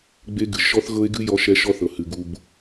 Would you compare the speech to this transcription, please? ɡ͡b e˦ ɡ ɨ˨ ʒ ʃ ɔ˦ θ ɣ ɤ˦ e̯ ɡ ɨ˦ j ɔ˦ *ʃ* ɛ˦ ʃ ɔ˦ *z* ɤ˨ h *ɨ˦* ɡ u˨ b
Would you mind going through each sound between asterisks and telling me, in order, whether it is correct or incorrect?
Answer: correct, incorrect, incorrect

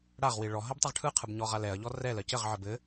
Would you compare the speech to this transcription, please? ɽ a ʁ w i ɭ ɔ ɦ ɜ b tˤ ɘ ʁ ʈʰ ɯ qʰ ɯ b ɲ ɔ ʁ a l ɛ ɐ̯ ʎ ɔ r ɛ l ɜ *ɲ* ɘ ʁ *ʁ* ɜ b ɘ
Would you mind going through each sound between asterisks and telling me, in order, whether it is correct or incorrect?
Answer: incorrect, incorrect

